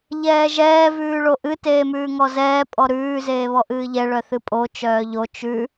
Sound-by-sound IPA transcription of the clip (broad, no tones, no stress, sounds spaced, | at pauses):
ʎ ɛː ʒ ɛː v ʉː ɭ o ʔ ɨ t eː m ʉː ŋ ɔ z ɛː pʼ ɔ ɾ ʉː z eː β ɔ ʔ ɨː ʎ ɛ ɭ œ θ ɨ pʼ o t͡ʃ œː ʎ o t͡ʃ ʉ